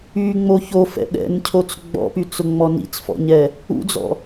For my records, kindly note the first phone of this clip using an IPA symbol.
y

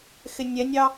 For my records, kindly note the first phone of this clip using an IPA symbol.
x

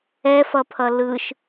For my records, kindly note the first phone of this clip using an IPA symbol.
ɛ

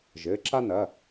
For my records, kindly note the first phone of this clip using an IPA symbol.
ʒ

